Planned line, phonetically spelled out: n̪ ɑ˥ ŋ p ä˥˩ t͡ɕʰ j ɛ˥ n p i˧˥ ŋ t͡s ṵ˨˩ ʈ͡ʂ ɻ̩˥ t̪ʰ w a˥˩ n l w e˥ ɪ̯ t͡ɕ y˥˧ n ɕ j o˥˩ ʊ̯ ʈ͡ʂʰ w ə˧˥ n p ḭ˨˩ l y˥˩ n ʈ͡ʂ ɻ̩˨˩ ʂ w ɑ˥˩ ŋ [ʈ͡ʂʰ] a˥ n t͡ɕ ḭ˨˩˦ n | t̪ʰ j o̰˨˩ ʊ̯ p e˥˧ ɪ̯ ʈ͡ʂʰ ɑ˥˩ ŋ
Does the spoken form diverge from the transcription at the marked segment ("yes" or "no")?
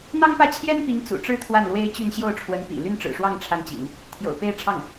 no